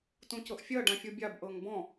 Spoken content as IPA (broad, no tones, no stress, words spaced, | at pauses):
tũcɤʔfʲɜ ɖãfʲubʲab ʔɤŋbɔ̃